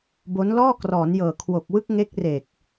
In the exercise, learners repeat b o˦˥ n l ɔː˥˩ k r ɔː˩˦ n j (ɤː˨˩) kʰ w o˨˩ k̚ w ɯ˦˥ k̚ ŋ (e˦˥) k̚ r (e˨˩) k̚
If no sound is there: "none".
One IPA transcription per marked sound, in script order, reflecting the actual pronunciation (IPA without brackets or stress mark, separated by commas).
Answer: ɤː˨˩, e˦˥, e˨˩